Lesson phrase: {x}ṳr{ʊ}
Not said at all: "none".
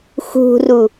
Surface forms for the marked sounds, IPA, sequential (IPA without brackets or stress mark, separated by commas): x, u